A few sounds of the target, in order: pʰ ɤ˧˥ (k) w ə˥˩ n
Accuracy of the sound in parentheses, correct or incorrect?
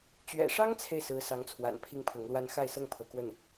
correct